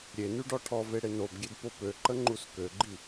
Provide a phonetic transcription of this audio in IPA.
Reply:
ɾʲ e n y ɖ ɔ ʈʰ ɔ v e ɽ e n o b ɡʲ e d p o p ø ǃ ə ŋ͡ǃ u s k ø ɡ͡ǃ i

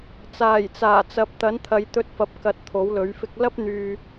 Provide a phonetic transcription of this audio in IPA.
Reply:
t͡s aː˨˩ j t͡s aː˨˩ t͡s ɐ˨˥ p̚ t̪ ɐ˨˥ n t̪ʰ ɐ˨˧ j t̪ ɵ˧ t̚ f ɐ˨ p̚ k ɐ˨ t̚ t̪ʰ o˨˥ w l ɵ˨˥ ɥ f ɪ˥ k̚ l ɐ˥ p̚ n̪ yː˧

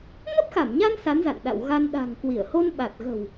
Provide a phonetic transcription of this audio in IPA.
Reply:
ŋ ə˦˥ p̚ x a˧˩ m ɲ a˧ n s a˨˦ n z a̰˧˨ n ɗ a̰˧˨ w ɣ a˧ n ɗ a̤˨˩ ŋ k w i˧˩ ə̯ h o˧ n ɓ a˨˩ t̚ ɣ ə̤˨˩ w

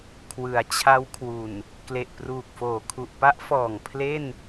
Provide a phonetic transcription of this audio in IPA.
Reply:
kʰ w ɯ˩˦ a̯ t͡ɕʰ a˦˥ w kʰ w u˨˩ n | k l e˨˩ ʔ p r uː˨˩ k̚ f oː˨˩ kʰ u˨˩ ʔ p a˦˥ ʔ f ɔː˨˩ ŋ pʰ l e˥˩ n

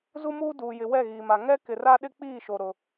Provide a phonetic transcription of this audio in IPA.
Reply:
z u˦ m uː˦ d uː˨ j ɪ˨ w ɛ˦˨ ɣ iː˨ m a˨ ŋ ɛ˦ k ɪ˨ r a˦ ɗ ɪ˦ k͡p iː˦˨ ʃ o˨ ɾ ʊ˦

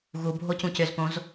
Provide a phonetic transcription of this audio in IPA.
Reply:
ɣ u bʱ o c ũ c ʏ z p õ z

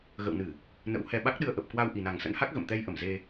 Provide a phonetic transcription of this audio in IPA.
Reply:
ɣ ə̰˧˨ w n ɨ˧˩˨ | n ə̰˧˥ w h ɛ˧ ɓ a˦˥ k̚ ɗ ɨ˧ ə̯ ʔ ə˨˩ p̚ k w a˧ w ʔ i˨˩ n a˨˩ ŋ s ə̰˧˥ n h a˦˥ k̚ ɣ ə̰˧˨ m t̪ ɛ˧ j ʔ ə˧˩ m z e˧

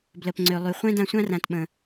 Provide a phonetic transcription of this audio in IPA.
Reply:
b l ə˨ p ŋ͡ǀ ø˨ lˠ y˨ χʷ ɛ̃˦ d ã˧ sʷ ã˦ r ã˨ t ɓ ə̃˨

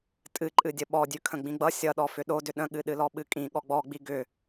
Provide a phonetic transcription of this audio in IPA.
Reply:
tʼ ɨ ǃʼ ɨ dʲ ə ɓ ɔ dʲ ʉ kʰ ə̃ ɡ͡b ĩ ɡ͡b ʌ sʲ ʌ ɗ ɔ f ʏ ɗ o d ʏ ɗ ə̃ ɠ ɨ ɗ ɨ l ɔ ɓ ɨ kʼ ĩ ɠ ɔ ɡ͡b ɔ ɡ͡b i ɡ ʏ

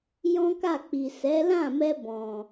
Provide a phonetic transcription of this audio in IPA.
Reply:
j ɔ̃˦ k a˦˨ k͡p i˨ s ɛ˨˦ l ã˦˨ m ɛ˧ b ɔ̃˨

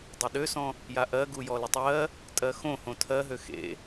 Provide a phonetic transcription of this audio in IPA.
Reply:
dˤ e ɗ ø s ɔ̃ | j a ʔ ɜ ɡ u j ɔ l ɪ tˤ ɜ | tʼ ɜ x õ h õ tʰ ɜ ɦ ø x ḛ

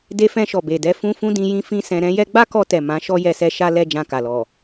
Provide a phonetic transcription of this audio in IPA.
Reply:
d e˧ f ɛ̃˧ ʃ ɔ˨ b e˨ d ɛ˧ f ũ˧ f ũ˦ d ĩ˧ j ĩ˦ f ĩ˦ s ɛ̃˧ ɾ ɛ̃˧ j ɛ˧ ɡ͡b a˦ k ɔ˧ t ɛ˨ m ã˨˦ ʃ ɔ˦ j ɛ˧ s ɛ˧ ʃ a˦ l ɛ˧ d͡ʒ ã˧ k a˨ l ɔ˨

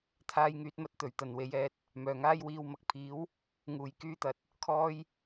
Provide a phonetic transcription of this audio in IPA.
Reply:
t̪ʰ aː˧ j ŋ yː˧ t̚ m ɐ˧ t̚ t̪ ɵ˨˩ ɥ t̪ ɐ˨ n w e˨˥ j ɛː˨˥ t̚ | m œː˨˩ ŋ aː˥ j w iː˧ w m ɐ˧ k̚ pʰ iː˨˥ w | ŋ uː˨˩ j k yː˧ t̪ ɐ˨ t̚ | kʰ ɔː˥ j

